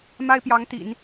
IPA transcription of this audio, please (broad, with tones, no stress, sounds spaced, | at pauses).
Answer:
m a˥ ɪ̯ p j ɑ˧˥ ŋ t̪ ḭ˨˩˦ n